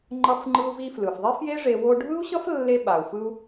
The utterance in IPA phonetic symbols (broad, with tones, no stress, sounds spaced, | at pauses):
ŋ͡ǃ ʌ˧ f ŋ͡ǃ ɯ˧ u̯ v i˧ f l ɯ˩ f ðˤ e˥ f j e˥ ʐ e˧ w o˧ ɖʱ ɯ˥ u̯ ɕ ʌ˥ f lː e˧ ɓ a˩ u̯ f ɯ˧ u̯